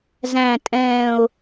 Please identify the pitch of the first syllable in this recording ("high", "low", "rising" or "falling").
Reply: low